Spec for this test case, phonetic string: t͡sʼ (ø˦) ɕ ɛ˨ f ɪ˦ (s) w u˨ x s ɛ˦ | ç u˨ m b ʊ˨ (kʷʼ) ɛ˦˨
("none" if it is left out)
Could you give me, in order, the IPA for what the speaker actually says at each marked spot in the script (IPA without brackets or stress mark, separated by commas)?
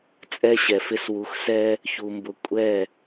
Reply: ɛ˦, s, kʷʼ